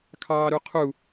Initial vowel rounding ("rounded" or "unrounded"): unrounded